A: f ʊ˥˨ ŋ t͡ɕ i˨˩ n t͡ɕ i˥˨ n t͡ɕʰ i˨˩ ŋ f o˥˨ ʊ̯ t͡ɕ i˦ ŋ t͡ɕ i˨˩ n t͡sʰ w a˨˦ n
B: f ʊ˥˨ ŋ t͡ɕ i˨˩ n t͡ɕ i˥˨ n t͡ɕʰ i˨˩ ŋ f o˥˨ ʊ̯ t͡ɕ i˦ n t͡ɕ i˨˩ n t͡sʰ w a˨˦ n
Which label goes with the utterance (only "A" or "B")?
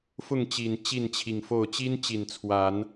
B